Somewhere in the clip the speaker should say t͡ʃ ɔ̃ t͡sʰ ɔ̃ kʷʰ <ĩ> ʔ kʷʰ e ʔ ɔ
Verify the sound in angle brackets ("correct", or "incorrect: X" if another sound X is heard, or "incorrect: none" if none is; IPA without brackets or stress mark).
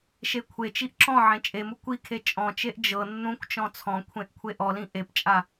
incorrect: ẽ